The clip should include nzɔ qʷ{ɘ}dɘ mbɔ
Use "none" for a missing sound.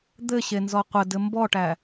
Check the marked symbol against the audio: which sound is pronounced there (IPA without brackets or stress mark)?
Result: ɘ